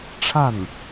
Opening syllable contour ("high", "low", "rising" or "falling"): falling